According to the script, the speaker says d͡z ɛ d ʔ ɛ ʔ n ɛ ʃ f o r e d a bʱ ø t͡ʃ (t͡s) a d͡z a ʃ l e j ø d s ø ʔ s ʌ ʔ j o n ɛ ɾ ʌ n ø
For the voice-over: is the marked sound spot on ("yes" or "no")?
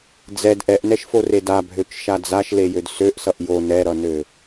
no